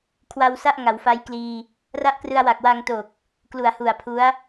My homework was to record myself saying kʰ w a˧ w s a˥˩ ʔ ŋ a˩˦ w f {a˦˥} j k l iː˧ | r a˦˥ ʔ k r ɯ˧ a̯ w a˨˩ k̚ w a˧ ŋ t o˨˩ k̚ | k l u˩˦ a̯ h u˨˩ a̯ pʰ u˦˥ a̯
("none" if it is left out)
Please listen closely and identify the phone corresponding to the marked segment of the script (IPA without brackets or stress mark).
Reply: a˦˥